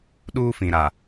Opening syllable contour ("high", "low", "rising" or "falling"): high